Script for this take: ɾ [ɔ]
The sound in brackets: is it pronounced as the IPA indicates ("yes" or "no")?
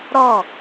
yes